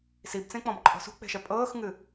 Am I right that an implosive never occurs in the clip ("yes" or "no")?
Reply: yes